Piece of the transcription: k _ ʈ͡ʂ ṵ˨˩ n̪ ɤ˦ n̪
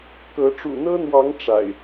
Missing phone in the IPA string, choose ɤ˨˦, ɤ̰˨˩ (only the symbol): ɤ˨˦